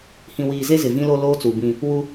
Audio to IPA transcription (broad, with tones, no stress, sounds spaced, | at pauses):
h ĩ˨ w iː˨ z e˦ z ɪ˨ v ĩ˦ l o˦ l oː˦ t͡s u˨ b ĩ˦ | w u˦